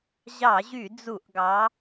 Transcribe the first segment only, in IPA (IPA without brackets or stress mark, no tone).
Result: ʑ